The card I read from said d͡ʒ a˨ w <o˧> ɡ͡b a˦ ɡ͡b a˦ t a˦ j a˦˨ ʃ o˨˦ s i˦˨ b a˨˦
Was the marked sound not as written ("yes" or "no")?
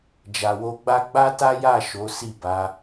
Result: no